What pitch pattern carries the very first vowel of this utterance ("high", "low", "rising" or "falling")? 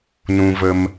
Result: high